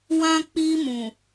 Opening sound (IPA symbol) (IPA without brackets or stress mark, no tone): w